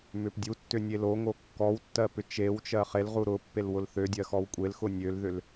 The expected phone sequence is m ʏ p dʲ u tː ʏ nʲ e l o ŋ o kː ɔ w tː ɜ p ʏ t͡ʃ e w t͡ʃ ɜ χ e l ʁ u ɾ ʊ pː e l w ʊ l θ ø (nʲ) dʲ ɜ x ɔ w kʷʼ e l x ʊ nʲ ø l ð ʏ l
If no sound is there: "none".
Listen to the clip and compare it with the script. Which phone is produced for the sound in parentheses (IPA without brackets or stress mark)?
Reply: none